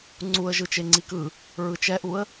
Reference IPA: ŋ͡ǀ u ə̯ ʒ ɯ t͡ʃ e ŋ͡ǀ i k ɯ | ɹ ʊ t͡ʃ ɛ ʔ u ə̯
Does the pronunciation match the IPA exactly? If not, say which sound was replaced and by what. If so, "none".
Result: ʊ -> ɯ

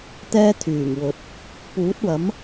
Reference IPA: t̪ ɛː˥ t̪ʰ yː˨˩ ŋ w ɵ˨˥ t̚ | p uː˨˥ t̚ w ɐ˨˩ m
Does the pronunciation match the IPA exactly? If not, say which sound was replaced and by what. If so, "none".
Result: ɐ˨˩ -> ɐ˨˥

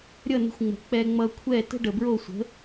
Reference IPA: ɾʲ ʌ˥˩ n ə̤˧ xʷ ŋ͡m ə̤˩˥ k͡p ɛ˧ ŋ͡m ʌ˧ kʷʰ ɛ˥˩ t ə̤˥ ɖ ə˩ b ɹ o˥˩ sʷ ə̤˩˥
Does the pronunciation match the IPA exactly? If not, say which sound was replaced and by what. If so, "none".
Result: none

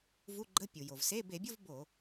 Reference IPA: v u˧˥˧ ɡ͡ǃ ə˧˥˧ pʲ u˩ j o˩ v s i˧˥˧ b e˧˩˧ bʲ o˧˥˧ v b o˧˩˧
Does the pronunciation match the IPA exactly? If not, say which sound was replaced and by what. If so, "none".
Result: i˧˥˧ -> e˧˥˧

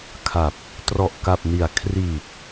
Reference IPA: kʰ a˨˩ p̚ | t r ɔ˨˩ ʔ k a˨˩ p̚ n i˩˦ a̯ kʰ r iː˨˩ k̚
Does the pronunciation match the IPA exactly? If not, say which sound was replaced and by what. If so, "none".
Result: none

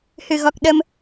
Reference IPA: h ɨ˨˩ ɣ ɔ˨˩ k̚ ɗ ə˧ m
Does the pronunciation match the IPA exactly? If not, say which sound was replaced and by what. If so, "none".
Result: none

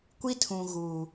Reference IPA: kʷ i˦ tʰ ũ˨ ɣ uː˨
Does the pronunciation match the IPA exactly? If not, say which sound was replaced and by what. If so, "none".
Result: none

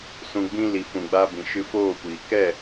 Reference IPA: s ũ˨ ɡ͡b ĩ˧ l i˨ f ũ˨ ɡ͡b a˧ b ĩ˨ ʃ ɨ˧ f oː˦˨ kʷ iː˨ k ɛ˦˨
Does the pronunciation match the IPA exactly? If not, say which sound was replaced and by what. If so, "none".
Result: none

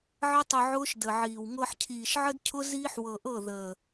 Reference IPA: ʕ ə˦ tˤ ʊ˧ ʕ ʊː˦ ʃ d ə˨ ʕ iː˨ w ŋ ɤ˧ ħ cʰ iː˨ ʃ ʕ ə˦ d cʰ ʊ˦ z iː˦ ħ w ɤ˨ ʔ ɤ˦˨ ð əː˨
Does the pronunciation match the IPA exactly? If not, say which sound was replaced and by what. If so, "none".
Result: none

